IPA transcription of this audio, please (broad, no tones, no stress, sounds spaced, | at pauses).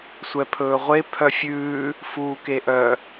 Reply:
sʷ ɛ pʰ ɵː ʁʷ e pʰ œ fʲ ʉː | f uː k e ʔ œ